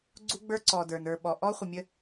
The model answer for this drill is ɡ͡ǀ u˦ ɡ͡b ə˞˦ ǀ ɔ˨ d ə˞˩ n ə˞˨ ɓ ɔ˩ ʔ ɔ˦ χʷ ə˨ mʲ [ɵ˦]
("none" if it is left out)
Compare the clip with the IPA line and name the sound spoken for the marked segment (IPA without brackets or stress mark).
ə˦